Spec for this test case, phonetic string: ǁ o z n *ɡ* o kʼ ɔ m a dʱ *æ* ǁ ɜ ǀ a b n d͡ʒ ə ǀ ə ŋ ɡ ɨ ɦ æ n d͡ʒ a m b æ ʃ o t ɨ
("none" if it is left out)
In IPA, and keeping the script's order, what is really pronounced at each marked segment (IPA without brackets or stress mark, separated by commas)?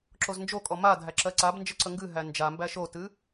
d͡ʒ, æ